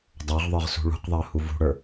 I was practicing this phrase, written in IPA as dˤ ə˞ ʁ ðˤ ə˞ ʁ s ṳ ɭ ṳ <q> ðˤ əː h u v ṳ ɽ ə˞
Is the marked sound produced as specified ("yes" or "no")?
yes